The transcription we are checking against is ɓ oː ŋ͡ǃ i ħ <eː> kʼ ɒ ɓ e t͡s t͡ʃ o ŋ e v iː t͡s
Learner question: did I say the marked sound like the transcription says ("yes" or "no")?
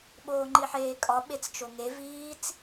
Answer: yes